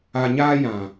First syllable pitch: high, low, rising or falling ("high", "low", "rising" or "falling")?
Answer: low